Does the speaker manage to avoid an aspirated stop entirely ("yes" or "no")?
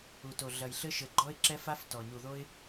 yes